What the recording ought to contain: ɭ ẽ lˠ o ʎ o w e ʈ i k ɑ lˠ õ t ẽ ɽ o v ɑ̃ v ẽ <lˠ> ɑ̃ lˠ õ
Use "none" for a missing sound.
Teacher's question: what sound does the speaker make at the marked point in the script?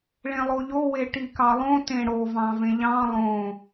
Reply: ʎ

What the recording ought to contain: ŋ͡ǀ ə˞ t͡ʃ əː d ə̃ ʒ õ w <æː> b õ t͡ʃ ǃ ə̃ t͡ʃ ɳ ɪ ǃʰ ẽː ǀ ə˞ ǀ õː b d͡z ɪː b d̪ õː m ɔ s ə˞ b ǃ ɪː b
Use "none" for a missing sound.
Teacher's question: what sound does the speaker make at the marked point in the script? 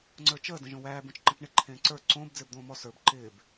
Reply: æː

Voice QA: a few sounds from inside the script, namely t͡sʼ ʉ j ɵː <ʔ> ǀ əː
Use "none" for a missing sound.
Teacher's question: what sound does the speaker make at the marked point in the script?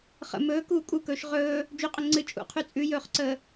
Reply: χ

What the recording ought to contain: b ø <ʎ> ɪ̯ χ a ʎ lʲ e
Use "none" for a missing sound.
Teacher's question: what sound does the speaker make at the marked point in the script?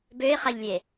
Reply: none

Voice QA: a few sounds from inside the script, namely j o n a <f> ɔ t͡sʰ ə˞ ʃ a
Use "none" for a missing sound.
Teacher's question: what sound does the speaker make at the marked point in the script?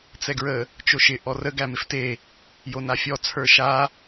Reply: fʲ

